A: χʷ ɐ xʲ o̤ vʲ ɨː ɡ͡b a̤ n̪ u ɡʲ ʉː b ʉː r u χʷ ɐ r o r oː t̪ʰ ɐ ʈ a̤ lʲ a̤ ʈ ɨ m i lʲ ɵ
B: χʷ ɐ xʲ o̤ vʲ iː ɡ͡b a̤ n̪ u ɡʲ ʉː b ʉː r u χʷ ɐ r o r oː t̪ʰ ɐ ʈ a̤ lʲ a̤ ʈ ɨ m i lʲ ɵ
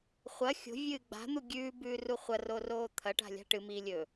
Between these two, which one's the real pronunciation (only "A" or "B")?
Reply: A